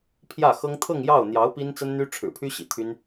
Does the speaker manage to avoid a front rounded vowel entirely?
no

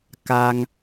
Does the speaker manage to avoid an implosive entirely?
yes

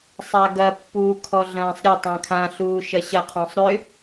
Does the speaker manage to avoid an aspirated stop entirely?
no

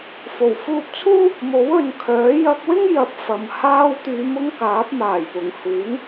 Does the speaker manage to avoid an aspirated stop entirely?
no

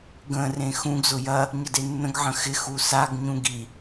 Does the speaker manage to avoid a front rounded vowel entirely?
yes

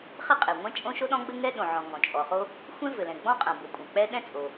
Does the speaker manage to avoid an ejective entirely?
no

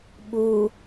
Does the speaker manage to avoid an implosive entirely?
no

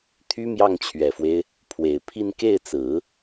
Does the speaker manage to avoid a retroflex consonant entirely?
yes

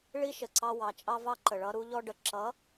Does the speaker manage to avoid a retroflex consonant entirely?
no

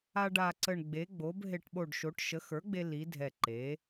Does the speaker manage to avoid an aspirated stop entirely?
yes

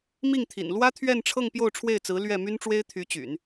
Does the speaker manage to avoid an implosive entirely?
yes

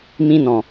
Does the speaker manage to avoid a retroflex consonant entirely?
yes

